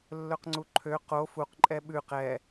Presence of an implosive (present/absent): present